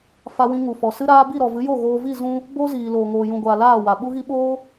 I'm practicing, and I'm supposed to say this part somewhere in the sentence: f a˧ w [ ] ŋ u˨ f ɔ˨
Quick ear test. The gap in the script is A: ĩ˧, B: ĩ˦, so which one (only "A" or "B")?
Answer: A